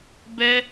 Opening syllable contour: high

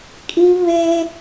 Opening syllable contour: high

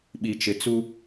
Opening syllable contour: low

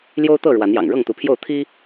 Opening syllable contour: high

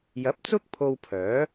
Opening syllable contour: rising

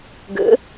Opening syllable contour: rising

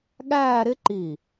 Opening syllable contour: falling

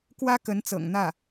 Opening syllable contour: high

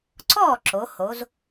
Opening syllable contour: falling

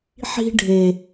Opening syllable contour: high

